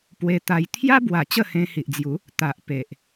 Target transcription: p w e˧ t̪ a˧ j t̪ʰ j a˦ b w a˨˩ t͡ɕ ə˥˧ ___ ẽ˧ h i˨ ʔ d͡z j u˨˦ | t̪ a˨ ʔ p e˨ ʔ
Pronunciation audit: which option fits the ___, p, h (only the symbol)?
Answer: h